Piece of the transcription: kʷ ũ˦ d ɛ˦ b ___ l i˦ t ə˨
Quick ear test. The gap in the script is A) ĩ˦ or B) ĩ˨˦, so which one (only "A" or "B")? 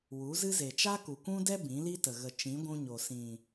B